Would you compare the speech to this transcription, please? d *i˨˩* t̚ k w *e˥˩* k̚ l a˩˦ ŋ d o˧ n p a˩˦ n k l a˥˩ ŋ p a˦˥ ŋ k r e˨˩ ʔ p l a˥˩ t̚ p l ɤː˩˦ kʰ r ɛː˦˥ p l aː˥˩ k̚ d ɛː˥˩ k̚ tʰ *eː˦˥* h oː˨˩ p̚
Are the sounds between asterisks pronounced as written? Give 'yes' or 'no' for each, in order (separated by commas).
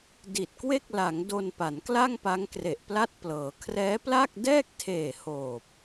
yes, yes, no